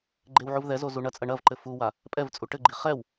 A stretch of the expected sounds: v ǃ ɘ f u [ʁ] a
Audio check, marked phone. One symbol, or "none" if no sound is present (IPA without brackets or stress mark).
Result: w